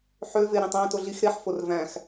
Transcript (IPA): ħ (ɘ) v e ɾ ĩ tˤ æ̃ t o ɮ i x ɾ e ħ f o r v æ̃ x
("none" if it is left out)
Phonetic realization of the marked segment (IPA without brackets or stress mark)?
ø